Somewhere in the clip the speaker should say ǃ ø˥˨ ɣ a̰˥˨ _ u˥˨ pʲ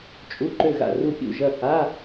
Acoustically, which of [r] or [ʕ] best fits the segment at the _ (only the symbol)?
r